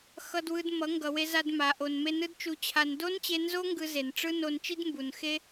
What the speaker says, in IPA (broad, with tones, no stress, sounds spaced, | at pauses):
x ʌ˧ d w ɯ˧ d m ʌ˨˦ ŋ ɡ ʌ˨ w e˧ z a˧ d m a˨ ʔ o˨ n m e˧ n ɯ˦ d t͡ʃ u˧ t͡ɕʰ a˧ n d o˦ n t͡ɕ e˧ n z o˦ ŋ ɡ ɯ˧ z e˨ n ʈ͡ʂ ɯ˦ n o˧ n t͡ʃ i˦ d m b u˨ n x e˦